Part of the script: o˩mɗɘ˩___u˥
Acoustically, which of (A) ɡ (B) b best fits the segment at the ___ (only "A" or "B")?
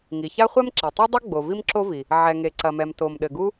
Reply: A